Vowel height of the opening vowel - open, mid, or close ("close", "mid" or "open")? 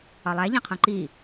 open